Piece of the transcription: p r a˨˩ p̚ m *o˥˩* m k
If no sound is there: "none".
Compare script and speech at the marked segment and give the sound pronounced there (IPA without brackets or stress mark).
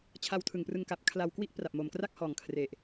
o˨˩